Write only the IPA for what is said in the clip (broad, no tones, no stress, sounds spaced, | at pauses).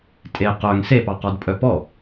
tʼ e q œ ŋ s e p ɑ q ɔ d pʼ œ p ɔ